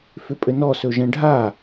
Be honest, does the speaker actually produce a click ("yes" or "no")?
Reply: no